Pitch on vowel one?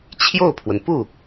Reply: falling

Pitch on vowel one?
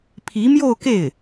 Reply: rising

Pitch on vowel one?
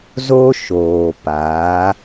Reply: high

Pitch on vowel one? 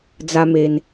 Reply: high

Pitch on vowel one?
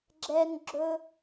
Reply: high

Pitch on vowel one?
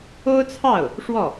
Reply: high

